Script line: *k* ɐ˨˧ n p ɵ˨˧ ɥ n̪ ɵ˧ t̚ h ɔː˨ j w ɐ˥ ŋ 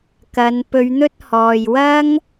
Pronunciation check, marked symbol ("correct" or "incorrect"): correct